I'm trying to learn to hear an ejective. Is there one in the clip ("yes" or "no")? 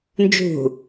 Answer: no